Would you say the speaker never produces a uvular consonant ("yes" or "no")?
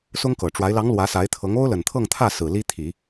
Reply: yes